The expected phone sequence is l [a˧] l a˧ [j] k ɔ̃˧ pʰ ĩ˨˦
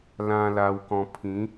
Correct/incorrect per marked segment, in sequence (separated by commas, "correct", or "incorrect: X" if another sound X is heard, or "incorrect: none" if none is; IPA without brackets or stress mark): incorrect: ã˧, incorrect: w